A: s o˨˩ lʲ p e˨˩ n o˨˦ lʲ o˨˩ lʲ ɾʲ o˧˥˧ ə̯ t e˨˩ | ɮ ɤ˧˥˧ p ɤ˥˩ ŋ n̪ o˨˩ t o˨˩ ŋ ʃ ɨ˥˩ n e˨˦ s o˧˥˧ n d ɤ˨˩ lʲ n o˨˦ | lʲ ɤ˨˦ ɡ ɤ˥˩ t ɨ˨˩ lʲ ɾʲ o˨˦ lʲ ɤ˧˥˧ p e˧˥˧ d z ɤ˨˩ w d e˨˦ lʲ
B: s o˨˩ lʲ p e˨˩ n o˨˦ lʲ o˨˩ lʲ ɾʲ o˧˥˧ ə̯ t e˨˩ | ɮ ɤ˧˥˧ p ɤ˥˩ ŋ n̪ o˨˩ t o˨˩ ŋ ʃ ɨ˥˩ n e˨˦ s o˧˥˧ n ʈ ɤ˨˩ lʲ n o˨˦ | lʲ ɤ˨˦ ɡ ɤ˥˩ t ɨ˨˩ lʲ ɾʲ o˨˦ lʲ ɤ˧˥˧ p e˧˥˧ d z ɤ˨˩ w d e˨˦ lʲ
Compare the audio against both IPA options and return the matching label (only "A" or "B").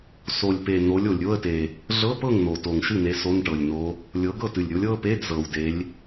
B